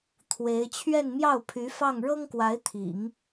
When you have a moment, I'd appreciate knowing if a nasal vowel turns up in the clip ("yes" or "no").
no